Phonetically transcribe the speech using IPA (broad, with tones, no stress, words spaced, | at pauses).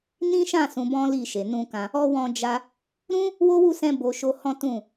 nĩ˦ʃã˦˨ sũ˧bɔ̃˦li˦˨ʃe˨ nũ˧kã˧ | ɔ˧ wɔ̃˧d͡ʒa˧ | ɾũ˦ | wo˦wu˦˨sɛ̃˧ bo˨ʃo˧ hɔ̃˦ tũ˦˨